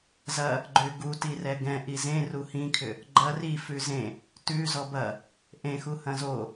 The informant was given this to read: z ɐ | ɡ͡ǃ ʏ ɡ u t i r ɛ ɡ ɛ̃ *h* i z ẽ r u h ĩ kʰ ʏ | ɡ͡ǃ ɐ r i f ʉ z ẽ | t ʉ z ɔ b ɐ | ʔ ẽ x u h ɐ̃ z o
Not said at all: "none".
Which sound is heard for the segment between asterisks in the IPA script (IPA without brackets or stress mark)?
ʔ